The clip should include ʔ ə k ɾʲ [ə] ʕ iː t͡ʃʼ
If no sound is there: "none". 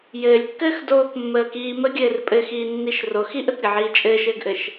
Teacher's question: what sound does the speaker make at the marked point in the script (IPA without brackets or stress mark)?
ə